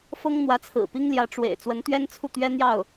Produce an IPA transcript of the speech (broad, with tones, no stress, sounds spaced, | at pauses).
f ɤ˥ ŋ n̪ w ä˧˥ t͡sʰ ɹ̩˨˩ p i˥ ŋ l j ä˧˥ ʈ͡ʂ w ḛ˨˩ ɪ̯ t͡s w ə˧˥ n t̪ ɥ ɛ˥ n t͡sʰ u˥˩ t̪ ɥ ɛ˥ n̪ j ɑ˥˩ ʊ̯